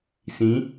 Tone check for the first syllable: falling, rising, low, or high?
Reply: rising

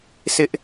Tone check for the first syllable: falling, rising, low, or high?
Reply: high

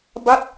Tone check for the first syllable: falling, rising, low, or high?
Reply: falling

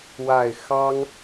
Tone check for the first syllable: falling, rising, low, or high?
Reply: low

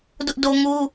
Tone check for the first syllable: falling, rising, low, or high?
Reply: high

